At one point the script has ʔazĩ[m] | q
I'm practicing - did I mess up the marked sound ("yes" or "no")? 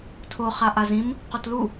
no